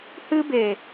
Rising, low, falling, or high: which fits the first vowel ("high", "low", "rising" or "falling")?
high